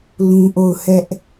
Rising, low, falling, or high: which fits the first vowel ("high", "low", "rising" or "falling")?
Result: high